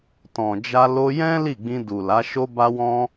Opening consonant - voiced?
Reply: no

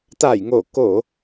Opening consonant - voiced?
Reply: no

